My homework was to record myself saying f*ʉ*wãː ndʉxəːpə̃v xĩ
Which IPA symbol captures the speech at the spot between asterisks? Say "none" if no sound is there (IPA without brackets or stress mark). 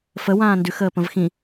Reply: ə